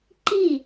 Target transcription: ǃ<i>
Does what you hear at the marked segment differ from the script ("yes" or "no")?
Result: no